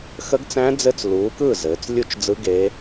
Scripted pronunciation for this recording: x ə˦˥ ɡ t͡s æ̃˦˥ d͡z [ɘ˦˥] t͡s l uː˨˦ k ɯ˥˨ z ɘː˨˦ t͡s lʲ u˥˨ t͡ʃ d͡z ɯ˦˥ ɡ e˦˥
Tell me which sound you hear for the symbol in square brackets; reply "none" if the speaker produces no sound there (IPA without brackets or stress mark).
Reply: ɘ˦˥